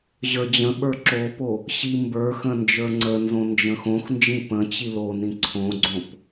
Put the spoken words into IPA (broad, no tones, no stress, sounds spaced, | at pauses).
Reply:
ʑ ə˞ d͡ʑ ə̃ ɓ ə˞ ǁ o p o | ɕ i m b ə˞ x ə̃ n d͡ʒ ə˞ ŋ͡ǀ ə n z õ n d͡ʒ ə̃ x õ x n d͡ʒ ĩ p ə̃ t͡ɕ i l o n ĩ ǀʰ õ ɡ͡ǀ õ p